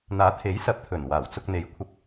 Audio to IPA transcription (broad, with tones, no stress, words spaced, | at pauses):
n̪aː˨˥t̪ʰe˨˥jsɐ˨˥p̚ t̪ʰɵ˨˩nwaː˨˩w t͡sʊ˧k̚n̪e˨˧jkʷʰɐ˧p̚